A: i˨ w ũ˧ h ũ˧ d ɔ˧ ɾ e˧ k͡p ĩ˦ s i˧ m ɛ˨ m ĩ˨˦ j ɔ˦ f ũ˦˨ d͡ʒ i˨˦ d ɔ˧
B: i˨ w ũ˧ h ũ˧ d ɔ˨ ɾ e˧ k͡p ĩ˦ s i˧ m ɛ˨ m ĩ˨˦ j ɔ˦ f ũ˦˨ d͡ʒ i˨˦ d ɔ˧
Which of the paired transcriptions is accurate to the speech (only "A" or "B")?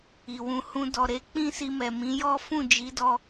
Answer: B